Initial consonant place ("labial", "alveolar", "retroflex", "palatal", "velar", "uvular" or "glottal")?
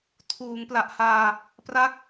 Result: alveolar